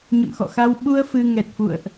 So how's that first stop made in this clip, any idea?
implosive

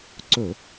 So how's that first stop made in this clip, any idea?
click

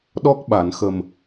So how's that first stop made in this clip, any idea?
implosive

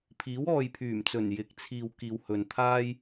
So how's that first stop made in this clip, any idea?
aspirated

